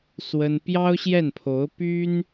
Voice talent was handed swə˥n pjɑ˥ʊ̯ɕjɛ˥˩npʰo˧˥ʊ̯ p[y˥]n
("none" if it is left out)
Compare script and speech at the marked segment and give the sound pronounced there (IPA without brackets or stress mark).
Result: y˥